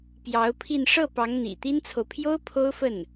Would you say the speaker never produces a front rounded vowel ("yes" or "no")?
yes